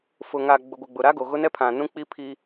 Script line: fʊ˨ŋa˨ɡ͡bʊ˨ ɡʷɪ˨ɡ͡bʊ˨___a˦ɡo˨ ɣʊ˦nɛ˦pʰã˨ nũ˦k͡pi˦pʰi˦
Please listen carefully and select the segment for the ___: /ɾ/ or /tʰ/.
ɾ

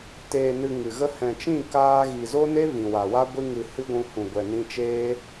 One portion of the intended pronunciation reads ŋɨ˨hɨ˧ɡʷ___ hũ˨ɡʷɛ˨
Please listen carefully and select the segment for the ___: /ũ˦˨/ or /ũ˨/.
ũ˨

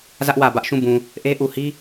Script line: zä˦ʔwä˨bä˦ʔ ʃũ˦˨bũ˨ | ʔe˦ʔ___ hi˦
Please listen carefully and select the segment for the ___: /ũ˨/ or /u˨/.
u˨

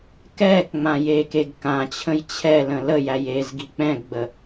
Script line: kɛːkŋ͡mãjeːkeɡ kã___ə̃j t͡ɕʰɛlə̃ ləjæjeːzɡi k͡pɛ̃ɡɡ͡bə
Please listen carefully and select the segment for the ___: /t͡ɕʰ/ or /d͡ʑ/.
t͡ɕʰ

